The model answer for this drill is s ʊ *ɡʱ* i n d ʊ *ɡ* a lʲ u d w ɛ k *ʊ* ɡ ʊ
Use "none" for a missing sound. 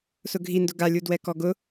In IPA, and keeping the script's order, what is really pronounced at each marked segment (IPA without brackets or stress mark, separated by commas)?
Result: ɡʱ, ɡ, ɔ